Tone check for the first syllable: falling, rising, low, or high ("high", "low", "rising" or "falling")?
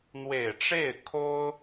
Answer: low